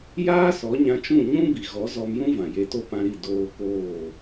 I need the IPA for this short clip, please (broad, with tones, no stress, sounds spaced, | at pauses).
j aː˦ s ɔ˨˦ ɲ ã˧ t͡ʃ ũ˦˨ ɲ ũ˦ b i˨ ɣ ɔ˨˦ z ɔ˧ m j ũ˦ v ã˨ j e˧ t o˦ p ã˧ ɾ i˦˨ d oː˧ k oː˦˨